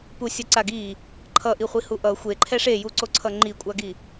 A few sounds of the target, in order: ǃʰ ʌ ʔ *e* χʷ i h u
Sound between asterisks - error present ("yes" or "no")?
yes